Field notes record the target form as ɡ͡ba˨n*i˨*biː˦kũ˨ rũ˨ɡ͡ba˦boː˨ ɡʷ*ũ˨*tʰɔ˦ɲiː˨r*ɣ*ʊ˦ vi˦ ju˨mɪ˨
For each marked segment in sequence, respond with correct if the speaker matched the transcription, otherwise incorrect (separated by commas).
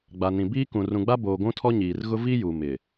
incorrect, incorrect, correct